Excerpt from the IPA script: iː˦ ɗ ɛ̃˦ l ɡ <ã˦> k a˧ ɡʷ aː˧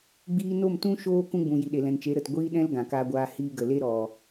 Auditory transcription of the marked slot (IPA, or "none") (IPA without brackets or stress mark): ã˨